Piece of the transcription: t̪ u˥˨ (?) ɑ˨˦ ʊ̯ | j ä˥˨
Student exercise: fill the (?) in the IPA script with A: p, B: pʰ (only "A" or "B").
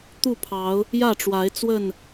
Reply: B